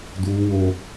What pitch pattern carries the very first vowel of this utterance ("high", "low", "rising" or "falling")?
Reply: high